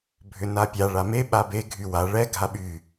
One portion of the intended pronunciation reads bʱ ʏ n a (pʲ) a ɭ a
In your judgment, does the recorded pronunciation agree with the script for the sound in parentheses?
yes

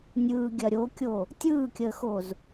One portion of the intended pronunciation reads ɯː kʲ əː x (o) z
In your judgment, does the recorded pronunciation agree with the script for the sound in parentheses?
yes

